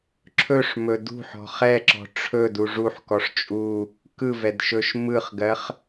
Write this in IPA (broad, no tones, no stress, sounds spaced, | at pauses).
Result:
ǁʰ ɵ ʂ m ɵ d ṳ ħ ɔ̤ χ ɛ ǁ ɔ̤ ʈ͡ʂʰ ɵ d u ʐ u ħ k ɔ ʂ t͡ʃʼ u | k ɯ v ɛ d ʃ ɵ ʃ m ɯ χ ɡ ɜ χ